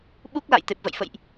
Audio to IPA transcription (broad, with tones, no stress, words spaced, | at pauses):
ɓu˦˥k̚la̰˧˨j t̪e˨˩p̚və̰˧˨jfə̰˧˨jʔ